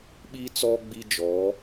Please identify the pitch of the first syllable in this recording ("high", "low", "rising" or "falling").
high